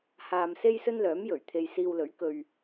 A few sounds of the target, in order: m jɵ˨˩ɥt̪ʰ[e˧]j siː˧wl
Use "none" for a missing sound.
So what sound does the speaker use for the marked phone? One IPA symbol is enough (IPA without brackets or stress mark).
e˧